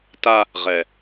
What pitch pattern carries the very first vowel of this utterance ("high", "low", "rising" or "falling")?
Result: high